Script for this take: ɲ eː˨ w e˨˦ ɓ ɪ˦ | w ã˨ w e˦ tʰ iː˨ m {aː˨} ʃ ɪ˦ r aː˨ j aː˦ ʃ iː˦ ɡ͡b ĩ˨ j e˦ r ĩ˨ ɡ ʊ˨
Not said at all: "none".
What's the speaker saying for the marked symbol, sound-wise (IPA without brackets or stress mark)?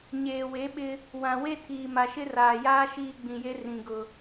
a˨